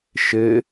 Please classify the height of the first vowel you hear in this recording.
mid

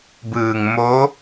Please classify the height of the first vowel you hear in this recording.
high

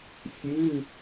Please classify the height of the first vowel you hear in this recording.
high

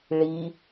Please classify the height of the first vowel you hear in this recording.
high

